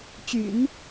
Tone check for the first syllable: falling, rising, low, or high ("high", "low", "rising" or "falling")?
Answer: low